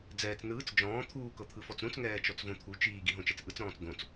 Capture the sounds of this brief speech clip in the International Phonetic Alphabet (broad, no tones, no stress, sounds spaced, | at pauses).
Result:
d͡z ɛː t͡s n ɯː t͡s d͡ʒ ɔ̃ː t̪ʰ uː k ɤ t̪ʰ ɯ f ɔ t͡s ɾ ũ t͡s ŋ ɛː t͡ʃ ɔ t͡s v õ t̪ʰ u t͡ʃ iː ɡ i ɦ õ t͡ʃ ɛ t͡s ʔ ɯ t͡s ɾ ɔ̃ː t͡s d̪ õ t͡s